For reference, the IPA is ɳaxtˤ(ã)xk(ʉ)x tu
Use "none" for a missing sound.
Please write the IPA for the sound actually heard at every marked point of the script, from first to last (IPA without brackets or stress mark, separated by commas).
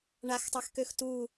a, ø